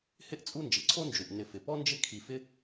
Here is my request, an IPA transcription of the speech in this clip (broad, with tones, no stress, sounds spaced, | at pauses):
h ɪ˥ ʔ t͡sʼ u˦ n d͡ʒ ɪ˩ ǀʰ o˦ n d͡ʒ u˩ ʔ n ɪ˨ f ɪ˩ p ɔ˥ n d͡ʒ ɪ˦ kʰ i˨ f ɪ˦